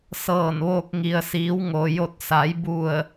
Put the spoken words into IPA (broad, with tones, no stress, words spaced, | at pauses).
sɤː˧˩nʋoː˧k̚ ŋi˩ə̯siː˩˧w ŋo˩jo˧˩t̚sa˩˧j bu˧˩ə̯